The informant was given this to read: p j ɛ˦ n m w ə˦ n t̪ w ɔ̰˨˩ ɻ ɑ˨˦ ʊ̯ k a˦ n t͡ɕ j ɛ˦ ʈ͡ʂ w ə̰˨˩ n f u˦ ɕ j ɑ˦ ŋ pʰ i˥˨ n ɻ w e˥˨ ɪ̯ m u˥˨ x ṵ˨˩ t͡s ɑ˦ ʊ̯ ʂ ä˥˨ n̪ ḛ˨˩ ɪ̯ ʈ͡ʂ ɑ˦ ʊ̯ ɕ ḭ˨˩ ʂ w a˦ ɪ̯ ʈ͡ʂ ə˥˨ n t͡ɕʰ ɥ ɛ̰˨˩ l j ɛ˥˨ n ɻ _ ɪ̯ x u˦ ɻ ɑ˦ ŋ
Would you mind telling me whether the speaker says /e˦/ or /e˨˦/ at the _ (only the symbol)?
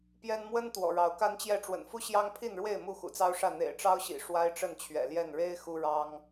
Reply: e˦